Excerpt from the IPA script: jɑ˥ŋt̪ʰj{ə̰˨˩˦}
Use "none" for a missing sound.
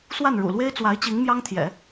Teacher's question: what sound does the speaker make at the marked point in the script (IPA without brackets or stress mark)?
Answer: ɛ̰˨˩˦